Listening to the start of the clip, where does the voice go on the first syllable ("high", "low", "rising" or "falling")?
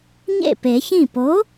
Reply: falling